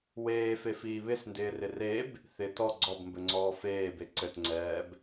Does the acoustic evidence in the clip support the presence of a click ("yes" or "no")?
yes